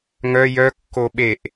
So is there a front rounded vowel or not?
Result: yes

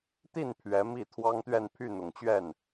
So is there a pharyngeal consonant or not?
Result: no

